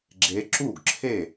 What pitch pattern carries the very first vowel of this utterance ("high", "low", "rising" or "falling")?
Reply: rising